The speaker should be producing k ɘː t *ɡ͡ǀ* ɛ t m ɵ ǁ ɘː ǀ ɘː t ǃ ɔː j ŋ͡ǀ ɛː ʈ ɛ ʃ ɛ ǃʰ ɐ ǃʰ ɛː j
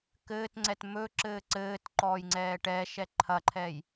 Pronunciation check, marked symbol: incorrect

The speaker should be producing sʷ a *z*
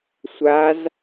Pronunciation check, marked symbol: correct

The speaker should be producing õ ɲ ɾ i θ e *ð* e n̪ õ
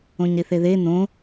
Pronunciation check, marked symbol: correct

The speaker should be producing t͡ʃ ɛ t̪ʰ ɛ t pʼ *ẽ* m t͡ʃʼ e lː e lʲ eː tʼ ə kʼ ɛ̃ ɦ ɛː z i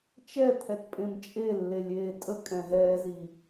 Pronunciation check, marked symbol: correct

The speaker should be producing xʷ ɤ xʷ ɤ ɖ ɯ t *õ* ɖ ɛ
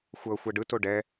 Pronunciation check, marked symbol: incorrect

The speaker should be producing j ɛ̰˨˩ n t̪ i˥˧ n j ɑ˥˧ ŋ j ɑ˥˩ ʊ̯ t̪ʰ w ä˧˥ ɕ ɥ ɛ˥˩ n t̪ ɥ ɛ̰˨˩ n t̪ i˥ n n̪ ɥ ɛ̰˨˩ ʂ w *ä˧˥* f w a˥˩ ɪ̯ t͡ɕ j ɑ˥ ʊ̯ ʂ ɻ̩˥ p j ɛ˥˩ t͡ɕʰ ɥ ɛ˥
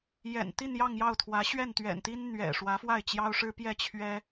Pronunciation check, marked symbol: correct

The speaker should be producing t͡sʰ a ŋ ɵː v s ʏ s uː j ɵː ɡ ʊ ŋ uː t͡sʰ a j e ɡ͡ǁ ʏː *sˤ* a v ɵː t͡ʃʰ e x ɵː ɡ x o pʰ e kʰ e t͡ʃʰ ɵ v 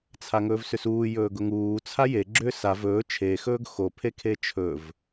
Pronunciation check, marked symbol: incorrect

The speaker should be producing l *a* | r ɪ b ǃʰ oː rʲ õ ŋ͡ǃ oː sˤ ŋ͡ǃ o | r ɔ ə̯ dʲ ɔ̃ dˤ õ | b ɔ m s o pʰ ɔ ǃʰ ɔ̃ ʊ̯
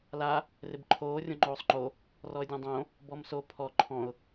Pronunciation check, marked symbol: correct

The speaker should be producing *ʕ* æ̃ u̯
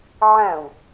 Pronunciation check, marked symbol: correct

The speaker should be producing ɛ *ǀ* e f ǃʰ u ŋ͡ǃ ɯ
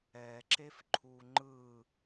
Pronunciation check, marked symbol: incorrect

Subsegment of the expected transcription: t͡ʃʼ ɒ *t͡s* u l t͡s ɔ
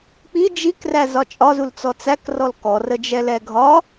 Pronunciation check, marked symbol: incorrect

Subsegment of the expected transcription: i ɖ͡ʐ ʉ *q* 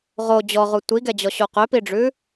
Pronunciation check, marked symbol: incorrect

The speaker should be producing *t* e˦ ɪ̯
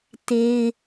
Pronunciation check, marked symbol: correct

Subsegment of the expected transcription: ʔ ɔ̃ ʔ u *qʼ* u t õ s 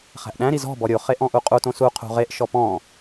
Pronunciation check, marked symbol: correct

